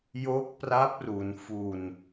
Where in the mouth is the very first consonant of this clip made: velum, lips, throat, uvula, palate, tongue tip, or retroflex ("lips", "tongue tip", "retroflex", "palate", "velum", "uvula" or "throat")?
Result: palate